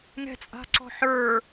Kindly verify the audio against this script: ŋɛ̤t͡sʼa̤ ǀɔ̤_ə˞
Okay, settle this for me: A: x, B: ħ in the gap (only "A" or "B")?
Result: B